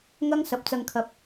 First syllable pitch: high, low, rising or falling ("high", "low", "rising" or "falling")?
high